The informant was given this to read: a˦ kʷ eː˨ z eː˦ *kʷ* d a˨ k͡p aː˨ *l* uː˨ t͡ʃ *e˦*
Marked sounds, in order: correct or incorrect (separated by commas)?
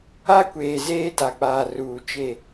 incorrect, incorrect, incorrect